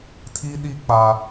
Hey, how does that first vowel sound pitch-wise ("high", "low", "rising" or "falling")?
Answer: high